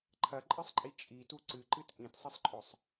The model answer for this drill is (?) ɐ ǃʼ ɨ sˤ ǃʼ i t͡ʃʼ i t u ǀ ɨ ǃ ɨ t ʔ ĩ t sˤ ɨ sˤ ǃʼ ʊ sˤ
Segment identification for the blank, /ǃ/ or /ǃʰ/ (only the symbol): ǃʰ